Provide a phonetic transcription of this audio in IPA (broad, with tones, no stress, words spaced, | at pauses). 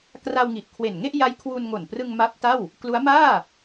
kra˧wŋi˨˩ʔkʰwe˨˩nŋe˥˩ʔ ja˦˥jkʰwu˧nŋo˨˩nprɯ˧ŋ ma˦˥p̚ta˥˩w | klu˦˥a̯maː˥˩